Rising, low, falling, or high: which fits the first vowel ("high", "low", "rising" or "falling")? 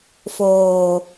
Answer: low